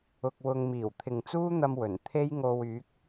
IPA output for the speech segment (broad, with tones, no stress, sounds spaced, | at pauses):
ʊ˧ k̚ w ʊ˧ ŋ m iː˨˩ w t̪ʰ ɪ˨ ŋ t͡s uː˥ n̪ ɐ˧ m w ɵ˨˩ n t̪ʰ e˥ j ŋ o˧ w yː˨˥ k̚